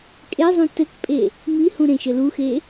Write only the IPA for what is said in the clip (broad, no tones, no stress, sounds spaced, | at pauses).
kʼ e zˤ ũ t ɘ k pʼ e | m i h ũ ɾ ẽ ʃ ɘ l u x e